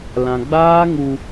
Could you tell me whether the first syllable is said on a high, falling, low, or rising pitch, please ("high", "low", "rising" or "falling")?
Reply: low